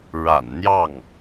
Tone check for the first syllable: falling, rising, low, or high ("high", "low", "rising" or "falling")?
low